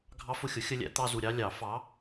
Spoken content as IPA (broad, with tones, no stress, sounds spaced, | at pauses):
ɡʱ ɑ˦ f ʊ˦˨ xʲ ʊ˨˥ xʲ ə˦ lʲ æ̰˨˥ t̪ ɑ˦ z u˨ ɾʲ ɑ˦ lʲ ɑ˨˩˦ f ɑ˨˥